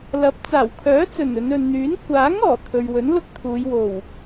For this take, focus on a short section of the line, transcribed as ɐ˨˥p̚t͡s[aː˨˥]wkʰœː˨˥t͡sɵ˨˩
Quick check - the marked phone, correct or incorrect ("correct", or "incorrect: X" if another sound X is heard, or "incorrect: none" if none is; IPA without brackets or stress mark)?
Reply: incorrect: aː˨˩